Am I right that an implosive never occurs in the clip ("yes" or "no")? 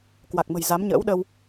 no